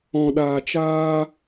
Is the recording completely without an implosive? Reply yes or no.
no